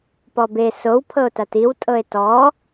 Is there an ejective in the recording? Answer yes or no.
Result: yes